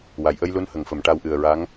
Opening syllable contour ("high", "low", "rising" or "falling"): low